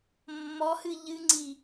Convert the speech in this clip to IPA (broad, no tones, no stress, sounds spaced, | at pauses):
mː ɔ h ɨ ʎ ɨ ŋ͡ǀ i